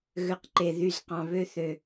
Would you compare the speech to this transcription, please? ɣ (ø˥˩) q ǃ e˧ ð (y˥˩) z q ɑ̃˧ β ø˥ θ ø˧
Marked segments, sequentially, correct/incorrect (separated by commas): incorrect, correct